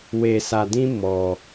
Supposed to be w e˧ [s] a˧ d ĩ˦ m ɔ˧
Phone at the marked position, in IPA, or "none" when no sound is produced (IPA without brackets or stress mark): s